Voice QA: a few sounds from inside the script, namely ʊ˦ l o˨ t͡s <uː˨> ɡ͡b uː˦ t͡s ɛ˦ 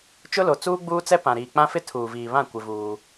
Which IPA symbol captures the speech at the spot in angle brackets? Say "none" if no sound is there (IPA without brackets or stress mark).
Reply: uː˦